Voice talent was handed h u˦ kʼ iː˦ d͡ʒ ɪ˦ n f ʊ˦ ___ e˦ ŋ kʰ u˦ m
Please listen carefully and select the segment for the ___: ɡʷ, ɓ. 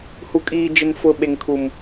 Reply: ɓ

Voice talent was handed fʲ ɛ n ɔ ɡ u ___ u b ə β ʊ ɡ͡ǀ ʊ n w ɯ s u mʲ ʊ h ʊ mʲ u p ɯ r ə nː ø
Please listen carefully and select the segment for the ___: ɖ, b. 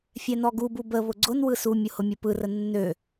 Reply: b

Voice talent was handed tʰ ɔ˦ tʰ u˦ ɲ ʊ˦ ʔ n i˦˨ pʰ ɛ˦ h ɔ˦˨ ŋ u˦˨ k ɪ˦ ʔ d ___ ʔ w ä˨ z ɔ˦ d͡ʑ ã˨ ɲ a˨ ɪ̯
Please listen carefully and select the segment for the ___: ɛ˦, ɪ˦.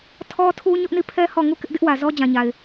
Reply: ɪ˦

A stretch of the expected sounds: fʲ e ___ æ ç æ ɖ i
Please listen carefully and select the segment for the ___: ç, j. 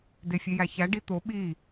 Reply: j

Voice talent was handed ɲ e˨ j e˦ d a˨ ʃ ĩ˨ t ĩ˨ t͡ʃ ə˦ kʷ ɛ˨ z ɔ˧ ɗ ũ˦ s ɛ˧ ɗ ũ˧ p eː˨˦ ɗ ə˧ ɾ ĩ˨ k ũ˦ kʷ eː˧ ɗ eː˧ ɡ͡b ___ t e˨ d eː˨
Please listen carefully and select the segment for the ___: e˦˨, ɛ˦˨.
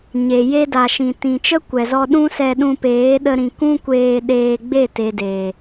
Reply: e˦˨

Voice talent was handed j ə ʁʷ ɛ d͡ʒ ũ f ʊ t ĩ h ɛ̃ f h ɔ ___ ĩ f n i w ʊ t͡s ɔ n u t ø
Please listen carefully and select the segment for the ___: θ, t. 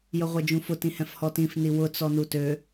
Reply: t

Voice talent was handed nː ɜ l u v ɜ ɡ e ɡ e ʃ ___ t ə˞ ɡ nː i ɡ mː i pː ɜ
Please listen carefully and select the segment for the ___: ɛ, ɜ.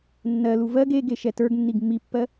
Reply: ɛ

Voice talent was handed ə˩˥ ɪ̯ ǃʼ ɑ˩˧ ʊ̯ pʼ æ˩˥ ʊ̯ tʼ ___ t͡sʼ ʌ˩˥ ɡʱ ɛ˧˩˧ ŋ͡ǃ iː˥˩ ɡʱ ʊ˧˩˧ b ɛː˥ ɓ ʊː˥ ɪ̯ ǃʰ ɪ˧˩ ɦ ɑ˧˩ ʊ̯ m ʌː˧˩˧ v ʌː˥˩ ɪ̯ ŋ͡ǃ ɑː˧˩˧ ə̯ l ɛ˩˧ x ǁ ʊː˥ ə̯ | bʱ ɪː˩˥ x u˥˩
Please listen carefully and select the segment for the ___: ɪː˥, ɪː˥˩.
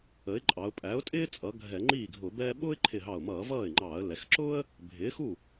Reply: ɪː˥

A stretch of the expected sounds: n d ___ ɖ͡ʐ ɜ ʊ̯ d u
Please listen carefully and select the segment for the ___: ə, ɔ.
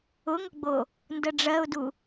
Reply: ə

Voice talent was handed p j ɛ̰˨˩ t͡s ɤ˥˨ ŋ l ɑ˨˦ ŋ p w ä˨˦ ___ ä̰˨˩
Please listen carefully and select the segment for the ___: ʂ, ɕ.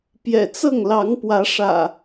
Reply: ʂ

